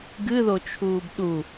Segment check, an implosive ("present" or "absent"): present